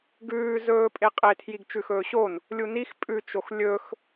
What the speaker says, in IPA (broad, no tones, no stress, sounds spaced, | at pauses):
ɡ ʉː z ɵː pʼ e qʼ e tʰ j i ɡ t͡ʃ ʉ x ɵː ɕ o n | lʲ u n i x pʼ ʉ t͡ʃ o x lʲ ɵ x